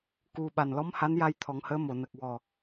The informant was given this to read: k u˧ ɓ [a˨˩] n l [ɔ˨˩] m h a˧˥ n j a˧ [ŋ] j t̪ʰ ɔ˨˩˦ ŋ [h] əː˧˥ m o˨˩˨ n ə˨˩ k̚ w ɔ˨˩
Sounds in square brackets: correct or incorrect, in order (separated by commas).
correct, incorrect, incorrect, correct